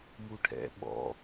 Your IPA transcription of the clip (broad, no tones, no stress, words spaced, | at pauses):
muʈʰɛ̰ ɓɔ̰